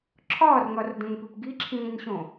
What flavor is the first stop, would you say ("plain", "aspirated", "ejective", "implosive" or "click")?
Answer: click